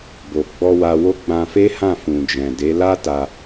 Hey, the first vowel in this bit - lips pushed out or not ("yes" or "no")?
yes